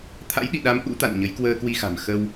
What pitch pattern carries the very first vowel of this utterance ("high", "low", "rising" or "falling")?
rising